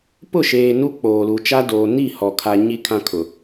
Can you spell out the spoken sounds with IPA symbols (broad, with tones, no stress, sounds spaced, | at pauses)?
p ʊ˦˨ ʃ eː˨ n u˦ k͡p oː˨ l u˨ t͡ʃ a˦ d oː˨ n i˦˨ h ɔ˨ kʰ a˨ ɲ i˦ kʰ ã˦ kʰ ʊ˨